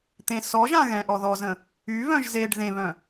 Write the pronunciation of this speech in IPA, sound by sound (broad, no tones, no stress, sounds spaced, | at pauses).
t̪ ẽ s ɔ ʒ ã ɣ ɛ̃ ʔ ɔ ð ɔ z ə̃ | y β œ̃ ʒ z e ɖ ð ẽ β œ̃